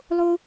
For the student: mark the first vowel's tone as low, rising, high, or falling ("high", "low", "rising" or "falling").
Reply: high